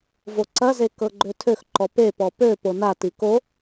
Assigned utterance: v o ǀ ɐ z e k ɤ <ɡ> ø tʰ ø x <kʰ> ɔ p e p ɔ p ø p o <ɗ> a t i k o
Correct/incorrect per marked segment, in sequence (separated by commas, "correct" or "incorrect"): incorrect, incorrect, incorrect